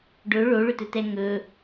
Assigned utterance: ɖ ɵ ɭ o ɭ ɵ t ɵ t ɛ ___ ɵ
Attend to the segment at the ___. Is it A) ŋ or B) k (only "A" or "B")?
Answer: A